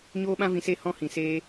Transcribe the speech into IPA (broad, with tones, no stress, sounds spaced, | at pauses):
ɲ oː˦ ɓ ã˦ v ĩ˧ s e˦˨ h ɔ̃˦ h ĩ˨ s eː˦